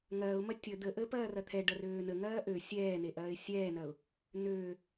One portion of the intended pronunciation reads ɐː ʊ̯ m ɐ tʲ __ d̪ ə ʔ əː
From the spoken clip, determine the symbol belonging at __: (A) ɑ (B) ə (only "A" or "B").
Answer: B